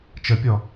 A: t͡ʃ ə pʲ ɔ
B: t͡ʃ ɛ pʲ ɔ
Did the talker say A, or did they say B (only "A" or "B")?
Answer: A